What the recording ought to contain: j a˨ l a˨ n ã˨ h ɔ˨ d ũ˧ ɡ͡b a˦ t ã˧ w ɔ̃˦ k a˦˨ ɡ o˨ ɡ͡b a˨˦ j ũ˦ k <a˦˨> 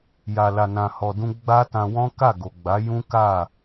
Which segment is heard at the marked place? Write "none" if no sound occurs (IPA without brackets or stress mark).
a˦˨